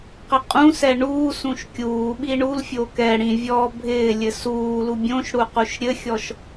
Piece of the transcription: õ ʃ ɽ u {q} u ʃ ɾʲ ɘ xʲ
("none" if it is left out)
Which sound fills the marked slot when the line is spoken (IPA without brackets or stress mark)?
q